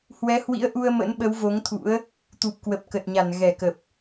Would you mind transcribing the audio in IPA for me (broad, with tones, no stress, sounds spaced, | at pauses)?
h w ɛ˨˦ h w ḭ˧˥ ə̯ ʔ u˧ ə̯ m ə̰˧˥ n ɓ ə˨˦ w v o˨˦ ŋ t̪ʰ ṵ˧˥ ə̯ | t̪ u˨˩ p̚ k w ə˨˩ p̚ k ə˨˩ t̚ ɲ a˧˩ n ɣ ɛ˧˩ k ə˨˩ p̚